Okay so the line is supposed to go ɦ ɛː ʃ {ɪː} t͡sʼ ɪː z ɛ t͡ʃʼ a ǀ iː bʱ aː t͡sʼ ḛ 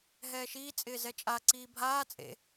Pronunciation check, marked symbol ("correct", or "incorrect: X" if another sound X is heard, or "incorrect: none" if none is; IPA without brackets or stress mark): incorrect: iː